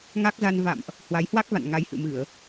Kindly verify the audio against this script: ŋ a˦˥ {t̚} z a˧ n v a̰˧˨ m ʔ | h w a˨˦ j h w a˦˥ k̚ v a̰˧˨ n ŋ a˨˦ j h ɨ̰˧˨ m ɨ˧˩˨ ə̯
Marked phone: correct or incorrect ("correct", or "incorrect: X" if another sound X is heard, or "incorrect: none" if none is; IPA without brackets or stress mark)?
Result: incorrect: k̚